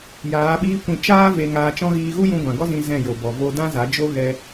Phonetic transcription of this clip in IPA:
jaː˨˦ɓiː˦kʷĩ˧ t͡ʃaː˦ ve˧ŋaː˧t͡ʃɔ̃˦ ɣiː˧ɣu˦jũ˧ ɡʷã˨ɡɔ˦zĩ˧ zɛ̃˦˨jo˨bɔ˨ vo˧dã˦za˨˦ d͡ʒo˦ɣɛ˧

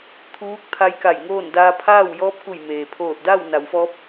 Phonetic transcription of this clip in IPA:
t̪ʰuː˧˥k̚ t̪ʰa˧˥jka˧˩jŋoː˥˨n daː˧pʰaː˥˨w jɔː˧˥p̚ku˧˩jmeː˩ pʰoː˧˩t̚da˥˨wna˩˧w fɔː˧˥p̚

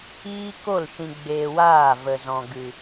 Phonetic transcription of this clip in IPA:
iː˦ko˦˨l ʃĩ˨ɡ͡beː˨ waː˦˨və˨zɔ̃˨ ɡɨ˨

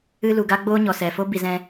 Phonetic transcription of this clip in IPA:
ɨ˧ lu˨ɡa˦ɡ͡boː˦ɲɔ˨ sɛ˨fo˦ bi˨zɛ̃˧

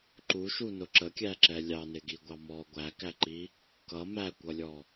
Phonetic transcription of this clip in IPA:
ǃuʃunʊ ǁəkʲæǁɛ lʲɑnɪɡiɡʷɑ mɔ ɡʷækæǃi | kʌ mækʷʌlʲɔ

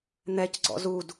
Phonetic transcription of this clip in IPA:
n̪ɛcɡ͡ǀɔ̰ zud

